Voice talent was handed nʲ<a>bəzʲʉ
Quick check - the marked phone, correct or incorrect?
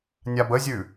correct